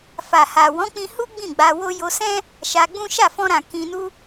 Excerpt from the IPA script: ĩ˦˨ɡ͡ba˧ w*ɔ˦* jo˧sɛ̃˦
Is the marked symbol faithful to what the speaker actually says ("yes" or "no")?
no